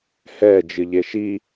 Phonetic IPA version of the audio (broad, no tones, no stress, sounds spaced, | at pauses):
h ɛ d͡ʒ ɨ ʎ e ʃ i